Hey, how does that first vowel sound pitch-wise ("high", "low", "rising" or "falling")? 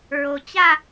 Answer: low